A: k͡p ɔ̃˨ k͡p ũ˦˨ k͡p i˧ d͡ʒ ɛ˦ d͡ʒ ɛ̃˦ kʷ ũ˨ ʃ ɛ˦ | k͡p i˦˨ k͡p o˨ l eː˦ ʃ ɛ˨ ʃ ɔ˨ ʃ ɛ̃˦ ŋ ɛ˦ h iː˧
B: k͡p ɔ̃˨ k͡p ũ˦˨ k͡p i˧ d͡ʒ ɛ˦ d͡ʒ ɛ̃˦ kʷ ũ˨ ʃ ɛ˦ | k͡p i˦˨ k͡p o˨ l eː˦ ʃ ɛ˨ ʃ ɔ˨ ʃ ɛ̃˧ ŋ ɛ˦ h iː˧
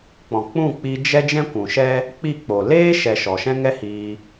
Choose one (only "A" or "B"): A